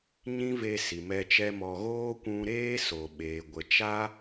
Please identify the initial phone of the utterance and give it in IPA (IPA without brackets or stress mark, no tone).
ɲ